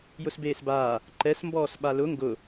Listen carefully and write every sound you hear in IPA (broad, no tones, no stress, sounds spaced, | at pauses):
j ʊ s b eː s b aː | ǃ ɛ s m b ɔː s ɓ a l ʊ ŋ ɡ ʊ